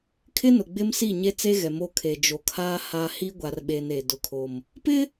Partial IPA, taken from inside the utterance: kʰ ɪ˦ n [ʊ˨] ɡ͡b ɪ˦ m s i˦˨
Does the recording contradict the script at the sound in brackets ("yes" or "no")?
no